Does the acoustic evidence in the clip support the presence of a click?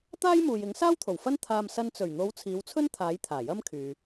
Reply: no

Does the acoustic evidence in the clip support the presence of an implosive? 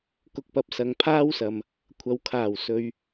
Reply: no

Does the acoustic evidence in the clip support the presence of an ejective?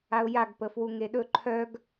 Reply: no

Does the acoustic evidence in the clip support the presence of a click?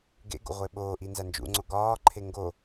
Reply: yes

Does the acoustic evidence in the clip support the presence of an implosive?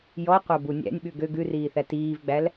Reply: yes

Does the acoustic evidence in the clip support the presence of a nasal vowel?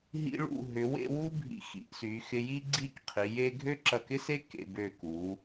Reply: no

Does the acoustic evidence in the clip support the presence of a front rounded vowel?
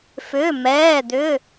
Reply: yes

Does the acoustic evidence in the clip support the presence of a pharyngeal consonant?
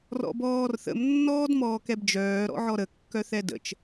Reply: yes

